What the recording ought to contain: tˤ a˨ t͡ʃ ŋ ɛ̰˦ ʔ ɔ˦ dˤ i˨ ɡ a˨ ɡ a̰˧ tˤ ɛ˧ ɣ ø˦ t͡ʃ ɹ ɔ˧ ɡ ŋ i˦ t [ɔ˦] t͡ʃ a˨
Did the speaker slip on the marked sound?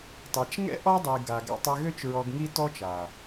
no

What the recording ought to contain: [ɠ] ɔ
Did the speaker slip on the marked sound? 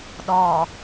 yes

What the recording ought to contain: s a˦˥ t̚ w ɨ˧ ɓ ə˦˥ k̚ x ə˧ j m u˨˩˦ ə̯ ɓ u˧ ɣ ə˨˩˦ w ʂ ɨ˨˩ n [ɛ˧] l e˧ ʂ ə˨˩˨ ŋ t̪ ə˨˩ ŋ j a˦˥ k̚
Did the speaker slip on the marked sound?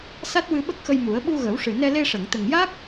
no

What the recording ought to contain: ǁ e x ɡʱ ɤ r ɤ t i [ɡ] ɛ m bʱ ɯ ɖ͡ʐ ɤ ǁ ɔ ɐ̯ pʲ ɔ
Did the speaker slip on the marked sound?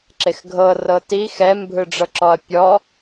yes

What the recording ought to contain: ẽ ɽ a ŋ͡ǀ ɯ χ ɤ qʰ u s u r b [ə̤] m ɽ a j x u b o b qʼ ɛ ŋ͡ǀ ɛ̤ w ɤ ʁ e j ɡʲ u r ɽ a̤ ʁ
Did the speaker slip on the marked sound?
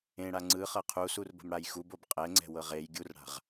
no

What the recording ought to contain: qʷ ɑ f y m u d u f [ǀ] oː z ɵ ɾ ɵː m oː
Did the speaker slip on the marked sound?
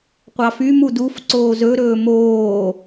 no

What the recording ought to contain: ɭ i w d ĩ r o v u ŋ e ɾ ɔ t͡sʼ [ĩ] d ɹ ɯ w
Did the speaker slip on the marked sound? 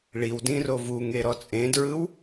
yes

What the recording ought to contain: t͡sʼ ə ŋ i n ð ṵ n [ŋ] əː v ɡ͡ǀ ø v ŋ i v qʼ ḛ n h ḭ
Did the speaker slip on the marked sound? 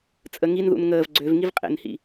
no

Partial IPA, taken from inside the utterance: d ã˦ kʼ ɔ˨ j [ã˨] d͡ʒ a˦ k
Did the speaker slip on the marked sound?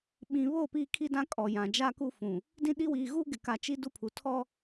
no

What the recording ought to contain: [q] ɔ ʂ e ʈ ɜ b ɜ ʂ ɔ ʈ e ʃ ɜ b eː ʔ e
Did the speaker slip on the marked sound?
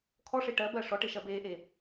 yes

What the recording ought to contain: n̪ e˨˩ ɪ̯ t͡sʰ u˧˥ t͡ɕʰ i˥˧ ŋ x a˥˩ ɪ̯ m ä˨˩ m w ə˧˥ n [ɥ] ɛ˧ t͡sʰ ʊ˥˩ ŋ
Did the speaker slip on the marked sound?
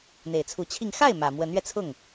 no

